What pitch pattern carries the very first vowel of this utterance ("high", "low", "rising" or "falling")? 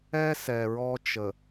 high